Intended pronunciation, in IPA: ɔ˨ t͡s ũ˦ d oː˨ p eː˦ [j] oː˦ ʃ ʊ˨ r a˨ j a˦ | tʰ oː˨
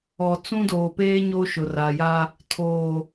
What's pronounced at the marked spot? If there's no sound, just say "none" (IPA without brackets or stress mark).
ɲ